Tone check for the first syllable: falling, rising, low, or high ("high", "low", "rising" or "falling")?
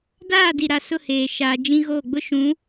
falling